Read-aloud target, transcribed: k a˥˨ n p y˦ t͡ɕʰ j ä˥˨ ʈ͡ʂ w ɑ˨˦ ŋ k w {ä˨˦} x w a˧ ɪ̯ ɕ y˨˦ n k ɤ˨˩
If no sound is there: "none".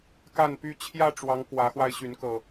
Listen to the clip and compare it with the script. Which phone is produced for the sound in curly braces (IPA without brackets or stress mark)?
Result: ä˨˦